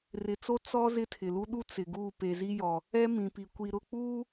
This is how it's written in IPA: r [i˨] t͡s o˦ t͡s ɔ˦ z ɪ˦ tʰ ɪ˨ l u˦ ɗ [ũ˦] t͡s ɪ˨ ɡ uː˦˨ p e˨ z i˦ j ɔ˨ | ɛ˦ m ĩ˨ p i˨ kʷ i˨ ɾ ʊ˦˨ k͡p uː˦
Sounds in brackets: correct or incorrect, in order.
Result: incorrect: ɪ˨, incorrect: u˦

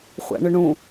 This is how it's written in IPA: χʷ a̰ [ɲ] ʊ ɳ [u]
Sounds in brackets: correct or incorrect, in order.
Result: incorrect: ɳ, incorrect: ũ

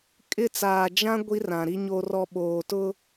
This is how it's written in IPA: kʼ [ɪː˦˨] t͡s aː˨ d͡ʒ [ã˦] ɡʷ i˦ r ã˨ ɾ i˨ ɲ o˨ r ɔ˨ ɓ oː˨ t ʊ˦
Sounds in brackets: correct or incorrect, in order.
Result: incorrect: ɪ˦˨, correct

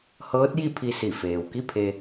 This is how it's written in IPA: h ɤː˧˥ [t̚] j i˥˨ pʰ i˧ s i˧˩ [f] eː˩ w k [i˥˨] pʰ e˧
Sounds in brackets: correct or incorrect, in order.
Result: correct, correct, correct

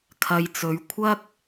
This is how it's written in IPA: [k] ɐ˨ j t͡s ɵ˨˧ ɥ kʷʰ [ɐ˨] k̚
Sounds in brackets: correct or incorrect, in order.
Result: incorrect: kʰ, incorrect: ɐ˥

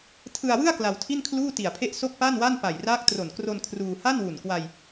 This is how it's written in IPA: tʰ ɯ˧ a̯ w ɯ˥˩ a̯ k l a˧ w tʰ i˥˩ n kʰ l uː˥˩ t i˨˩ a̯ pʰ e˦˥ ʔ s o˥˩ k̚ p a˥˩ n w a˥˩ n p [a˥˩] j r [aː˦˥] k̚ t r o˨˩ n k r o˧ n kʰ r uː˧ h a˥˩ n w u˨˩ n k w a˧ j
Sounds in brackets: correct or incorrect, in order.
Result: incorrect: a˨˩, correct

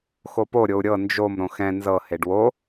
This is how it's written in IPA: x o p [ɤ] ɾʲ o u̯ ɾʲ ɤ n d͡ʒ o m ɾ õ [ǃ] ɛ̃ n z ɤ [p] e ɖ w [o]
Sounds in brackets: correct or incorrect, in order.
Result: incorrect: o, incorrect: x, incorrect: h, correct

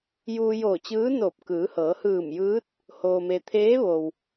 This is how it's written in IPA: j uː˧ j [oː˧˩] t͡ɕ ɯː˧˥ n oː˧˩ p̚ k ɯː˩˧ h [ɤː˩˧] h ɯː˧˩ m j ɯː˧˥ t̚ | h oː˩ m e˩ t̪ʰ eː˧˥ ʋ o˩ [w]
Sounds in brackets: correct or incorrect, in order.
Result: correct, correct, correct

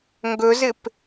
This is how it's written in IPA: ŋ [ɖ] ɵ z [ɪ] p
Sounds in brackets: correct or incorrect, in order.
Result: incorrect: ɡ, correct

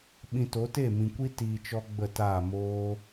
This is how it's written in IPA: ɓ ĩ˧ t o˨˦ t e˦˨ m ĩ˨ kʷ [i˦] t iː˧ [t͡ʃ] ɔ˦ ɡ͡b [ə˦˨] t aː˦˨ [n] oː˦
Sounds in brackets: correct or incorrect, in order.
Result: correct, correct, correct, incorrect: m

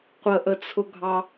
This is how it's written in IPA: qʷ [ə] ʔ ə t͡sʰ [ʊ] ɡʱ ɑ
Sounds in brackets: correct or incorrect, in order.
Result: correct, correct

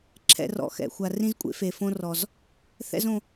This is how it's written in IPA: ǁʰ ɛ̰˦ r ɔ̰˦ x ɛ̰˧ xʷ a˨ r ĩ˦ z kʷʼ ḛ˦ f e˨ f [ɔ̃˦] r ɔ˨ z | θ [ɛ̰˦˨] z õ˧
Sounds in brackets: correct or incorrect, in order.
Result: incorrect: õ˦, incorrect: ɛ̰˦

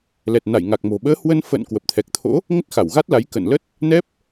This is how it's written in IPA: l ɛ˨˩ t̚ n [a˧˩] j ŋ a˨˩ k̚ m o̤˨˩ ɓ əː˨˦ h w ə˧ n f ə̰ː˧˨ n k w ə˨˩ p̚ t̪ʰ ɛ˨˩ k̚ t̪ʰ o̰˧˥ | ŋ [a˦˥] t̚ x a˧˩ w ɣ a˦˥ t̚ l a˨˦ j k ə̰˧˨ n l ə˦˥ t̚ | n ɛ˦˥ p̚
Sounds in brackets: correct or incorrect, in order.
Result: correct, incorrect: ə˦˥

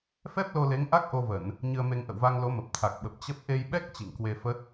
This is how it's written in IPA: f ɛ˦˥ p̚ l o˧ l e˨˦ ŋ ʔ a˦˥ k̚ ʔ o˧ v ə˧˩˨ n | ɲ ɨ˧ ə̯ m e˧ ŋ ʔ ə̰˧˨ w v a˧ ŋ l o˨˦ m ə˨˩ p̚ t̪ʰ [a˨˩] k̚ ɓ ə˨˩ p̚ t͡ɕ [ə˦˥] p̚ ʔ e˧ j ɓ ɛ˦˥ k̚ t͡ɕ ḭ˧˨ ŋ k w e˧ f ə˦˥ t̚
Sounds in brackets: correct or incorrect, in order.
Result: correct, correct

